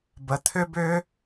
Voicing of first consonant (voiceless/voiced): voiced